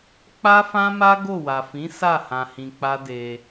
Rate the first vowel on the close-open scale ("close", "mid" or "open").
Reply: open